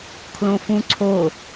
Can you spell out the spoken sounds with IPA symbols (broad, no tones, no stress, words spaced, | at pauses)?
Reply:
kʰlõfũǀʰo